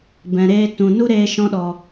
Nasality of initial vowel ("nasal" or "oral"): nasal